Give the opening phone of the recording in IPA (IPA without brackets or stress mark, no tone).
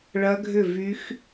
ɭ